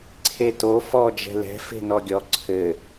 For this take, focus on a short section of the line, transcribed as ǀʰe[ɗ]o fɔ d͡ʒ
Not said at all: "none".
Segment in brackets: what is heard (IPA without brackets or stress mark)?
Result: t